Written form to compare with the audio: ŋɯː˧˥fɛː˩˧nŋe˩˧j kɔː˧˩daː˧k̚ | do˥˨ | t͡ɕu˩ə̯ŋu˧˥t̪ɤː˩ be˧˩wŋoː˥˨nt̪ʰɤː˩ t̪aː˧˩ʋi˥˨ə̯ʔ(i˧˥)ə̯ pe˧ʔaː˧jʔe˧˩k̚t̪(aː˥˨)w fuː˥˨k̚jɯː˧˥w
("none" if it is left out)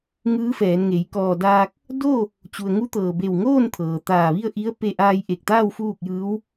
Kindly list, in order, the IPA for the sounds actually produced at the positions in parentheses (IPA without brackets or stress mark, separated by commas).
i˧˥, aː˥˨